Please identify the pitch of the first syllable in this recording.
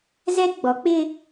high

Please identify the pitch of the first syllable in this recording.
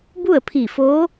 falling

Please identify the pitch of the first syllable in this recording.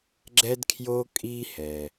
high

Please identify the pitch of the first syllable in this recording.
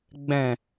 low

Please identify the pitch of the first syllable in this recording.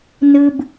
low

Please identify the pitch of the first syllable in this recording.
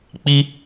high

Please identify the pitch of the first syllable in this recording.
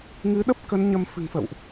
rising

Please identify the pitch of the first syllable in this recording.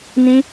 high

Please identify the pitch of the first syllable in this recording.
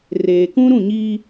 low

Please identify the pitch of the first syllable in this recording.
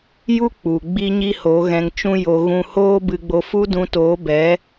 high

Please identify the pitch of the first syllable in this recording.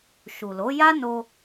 low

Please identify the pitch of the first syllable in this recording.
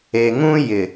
low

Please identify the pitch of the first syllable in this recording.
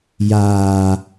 low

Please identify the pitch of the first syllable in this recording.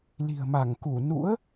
low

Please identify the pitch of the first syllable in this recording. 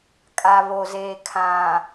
low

